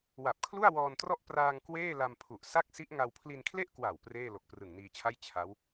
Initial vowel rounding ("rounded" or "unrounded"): unrounded